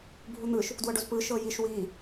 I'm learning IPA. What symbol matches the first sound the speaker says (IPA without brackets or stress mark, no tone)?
bʱ